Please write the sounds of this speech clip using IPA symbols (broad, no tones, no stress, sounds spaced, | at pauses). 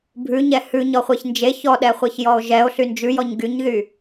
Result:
bʱ ʉ ɲ ɛ h ʉ ɲ ɔ χʷ e ç n d͡ʒ e ç ɔ ɗ ɛ χʷ e ç j ɔ o̯ ʒ ɛ o̯ ɬ y n d͡ʒ ʉ j ɔ ɲ ɡ y ɲ ð y